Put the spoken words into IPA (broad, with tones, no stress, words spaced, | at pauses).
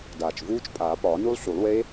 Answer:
daː˨˩t͡ʃvuː˦˥t͡ʃpʼaː˨˩˦ pɒː˨˩˦nu˦˥lˠɬu˨˩˦lˠwe˦˥